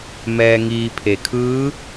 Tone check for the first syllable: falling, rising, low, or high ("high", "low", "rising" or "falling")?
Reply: low